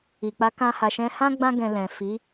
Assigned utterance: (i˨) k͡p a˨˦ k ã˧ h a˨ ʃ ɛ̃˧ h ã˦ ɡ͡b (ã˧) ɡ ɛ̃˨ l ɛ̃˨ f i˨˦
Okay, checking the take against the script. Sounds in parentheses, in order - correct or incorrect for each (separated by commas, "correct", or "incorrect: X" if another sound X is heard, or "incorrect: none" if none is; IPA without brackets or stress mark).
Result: correct, correct